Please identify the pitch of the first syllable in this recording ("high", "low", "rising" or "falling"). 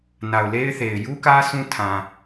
low